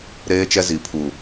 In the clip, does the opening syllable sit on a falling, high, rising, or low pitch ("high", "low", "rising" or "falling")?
high